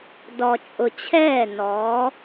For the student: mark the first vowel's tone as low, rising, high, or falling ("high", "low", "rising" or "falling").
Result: low